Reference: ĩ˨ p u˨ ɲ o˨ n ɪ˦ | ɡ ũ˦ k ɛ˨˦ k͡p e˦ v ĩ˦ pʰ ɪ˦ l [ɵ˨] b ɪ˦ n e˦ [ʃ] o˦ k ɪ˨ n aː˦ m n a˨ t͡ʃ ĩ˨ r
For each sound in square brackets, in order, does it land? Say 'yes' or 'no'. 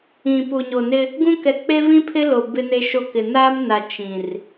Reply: no, yes

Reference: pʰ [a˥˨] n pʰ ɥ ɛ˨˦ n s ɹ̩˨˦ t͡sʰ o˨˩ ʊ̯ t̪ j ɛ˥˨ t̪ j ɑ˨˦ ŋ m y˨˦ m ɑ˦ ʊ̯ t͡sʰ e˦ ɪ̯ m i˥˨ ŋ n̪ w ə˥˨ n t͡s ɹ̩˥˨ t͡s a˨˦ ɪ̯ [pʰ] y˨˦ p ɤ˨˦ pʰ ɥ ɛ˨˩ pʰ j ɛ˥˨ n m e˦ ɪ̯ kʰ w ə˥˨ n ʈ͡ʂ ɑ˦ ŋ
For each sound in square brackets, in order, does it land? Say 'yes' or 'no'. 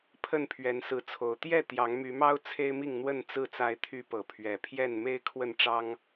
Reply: no, no

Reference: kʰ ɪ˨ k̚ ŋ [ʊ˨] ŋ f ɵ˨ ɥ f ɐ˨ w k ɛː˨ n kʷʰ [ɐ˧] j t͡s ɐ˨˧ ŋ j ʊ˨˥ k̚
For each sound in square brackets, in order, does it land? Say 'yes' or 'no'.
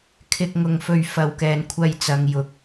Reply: yes, yes

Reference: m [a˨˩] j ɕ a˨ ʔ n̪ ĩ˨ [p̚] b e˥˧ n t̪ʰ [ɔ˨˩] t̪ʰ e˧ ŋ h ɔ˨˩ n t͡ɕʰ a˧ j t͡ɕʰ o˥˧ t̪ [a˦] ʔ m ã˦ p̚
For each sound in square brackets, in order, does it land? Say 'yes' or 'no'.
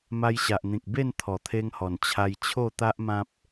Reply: no, no, yes, yes

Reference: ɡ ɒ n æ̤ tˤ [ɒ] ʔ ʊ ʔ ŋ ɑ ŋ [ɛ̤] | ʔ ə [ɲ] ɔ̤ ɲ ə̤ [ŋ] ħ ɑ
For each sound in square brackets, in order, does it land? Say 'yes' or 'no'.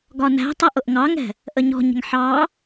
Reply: no, yes, yes, yes

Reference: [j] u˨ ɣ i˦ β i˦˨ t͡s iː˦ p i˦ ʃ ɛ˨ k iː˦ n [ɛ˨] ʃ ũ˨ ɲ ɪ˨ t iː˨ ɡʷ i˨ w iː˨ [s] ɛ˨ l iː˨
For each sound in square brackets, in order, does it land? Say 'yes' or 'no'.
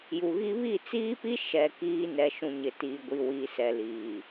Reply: yes, yes, yes

